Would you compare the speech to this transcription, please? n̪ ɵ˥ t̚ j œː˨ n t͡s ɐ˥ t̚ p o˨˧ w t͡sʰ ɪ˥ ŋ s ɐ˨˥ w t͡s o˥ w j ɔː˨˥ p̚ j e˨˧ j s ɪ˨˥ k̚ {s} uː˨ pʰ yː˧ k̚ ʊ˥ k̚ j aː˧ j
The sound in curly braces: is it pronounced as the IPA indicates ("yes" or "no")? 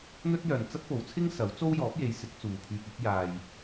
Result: no